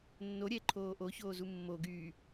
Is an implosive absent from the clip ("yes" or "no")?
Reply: yes